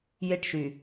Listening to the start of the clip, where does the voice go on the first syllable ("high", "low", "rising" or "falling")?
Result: falling